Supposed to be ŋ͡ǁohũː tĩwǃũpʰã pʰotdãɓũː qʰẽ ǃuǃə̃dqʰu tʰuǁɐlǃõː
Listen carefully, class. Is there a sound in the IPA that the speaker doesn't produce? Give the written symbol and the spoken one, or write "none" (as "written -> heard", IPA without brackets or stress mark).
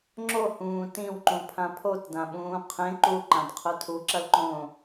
ə̃ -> ã